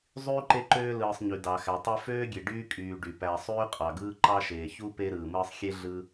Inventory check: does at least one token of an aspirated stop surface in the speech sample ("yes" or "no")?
no